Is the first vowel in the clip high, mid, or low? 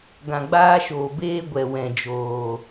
low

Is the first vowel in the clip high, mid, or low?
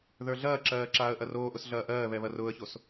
mid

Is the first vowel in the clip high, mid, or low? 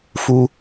high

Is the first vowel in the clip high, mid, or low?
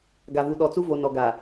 low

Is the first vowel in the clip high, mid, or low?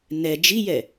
mid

